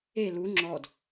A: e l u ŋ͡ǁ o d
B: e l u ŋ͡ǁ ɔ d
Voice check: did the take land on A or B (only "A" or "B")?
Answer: B